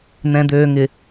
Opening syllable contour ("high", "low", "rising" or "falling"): low